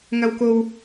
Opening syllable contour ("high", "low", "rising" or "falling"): low